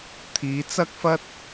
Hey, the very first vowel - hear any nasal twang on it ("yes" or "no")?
no